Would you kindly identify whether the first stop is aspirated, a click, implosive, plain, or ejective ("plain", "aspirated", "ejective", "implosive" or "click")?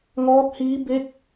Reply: plain